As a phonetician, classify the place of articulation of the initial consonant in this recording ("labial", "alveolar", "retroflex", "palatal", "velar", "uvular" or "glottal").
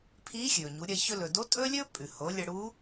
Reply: labial